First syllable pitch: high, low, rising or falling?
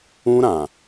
high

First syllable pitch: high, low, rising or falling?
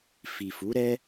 low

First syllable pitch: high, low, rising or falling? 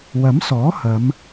rising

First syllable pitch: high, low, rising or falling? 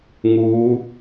rising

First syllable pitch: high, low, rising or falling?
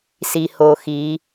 low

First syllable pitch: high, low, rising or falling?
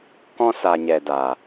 high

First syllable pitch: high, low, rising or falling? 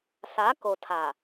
rising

